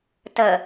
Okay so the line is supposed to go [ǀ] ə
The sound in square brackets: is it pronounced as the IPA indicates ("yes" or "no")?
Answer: no